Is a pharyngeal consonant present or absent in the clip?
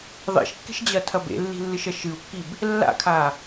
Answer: absent